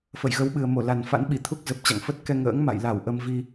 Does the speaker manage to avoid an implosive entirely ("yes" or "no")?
no